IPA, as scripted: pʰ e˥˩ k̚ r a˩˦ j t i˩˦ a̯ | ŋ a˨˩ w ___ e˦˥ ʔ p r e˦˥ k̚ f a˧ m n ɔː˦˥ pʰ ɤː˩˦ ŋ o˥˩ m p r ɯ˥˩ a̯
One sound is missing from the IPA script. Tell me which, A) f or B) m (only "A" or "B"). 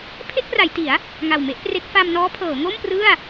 B